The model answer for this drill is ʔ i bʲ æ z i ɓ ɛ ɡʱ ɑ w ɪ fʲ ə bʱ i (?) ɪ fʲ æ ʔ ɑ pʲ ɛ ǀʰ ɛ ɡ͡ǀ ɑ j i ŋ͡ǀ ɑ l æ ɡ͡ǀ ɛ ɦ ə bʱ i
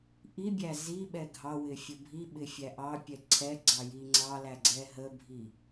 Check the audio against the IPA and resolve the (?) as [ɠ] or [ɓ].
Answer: ɓ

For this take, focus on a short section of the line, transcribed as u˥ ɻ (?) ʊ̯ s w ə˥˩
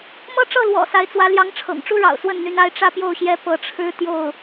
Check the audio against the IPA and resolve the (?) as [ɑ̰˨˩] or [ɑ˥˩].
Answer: ɑ̰˨˩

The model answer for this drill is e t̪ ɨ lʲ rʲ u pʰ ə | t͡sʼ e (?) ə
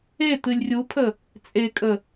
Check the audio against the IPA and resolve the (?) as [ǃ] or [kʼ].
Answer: kʼ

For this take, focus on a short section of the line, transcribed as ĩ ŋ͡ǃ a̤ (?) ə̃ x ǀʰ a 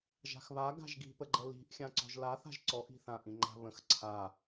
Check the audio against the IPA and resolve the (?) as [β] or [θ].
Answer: β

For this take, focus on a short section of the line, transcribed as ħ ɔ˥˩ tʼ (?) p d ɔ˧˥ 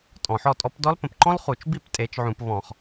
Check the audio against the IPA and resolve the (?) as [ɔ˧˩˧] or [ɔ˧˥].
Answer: ɔ˧˥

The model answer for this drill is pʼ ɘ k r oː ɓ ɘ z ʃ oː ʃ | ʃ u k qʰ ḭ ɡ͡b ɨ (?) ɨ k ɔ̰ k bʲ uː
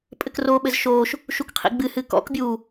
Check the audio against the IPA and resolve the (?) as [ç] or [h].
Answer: h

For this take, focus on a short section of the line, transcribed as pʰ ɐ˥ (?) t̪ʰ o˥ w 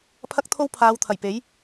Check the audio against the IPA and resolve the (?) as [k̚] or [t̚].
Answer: k̚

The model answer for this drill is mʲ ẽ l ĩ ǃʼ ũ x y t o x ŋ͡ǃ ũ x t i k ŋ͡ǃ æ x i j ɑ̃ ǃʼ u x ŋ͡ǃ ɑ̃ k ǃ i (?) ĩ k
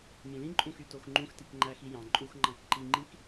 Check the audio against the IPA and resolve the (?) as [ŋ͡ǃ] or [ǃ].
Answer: ŋ͡ǃ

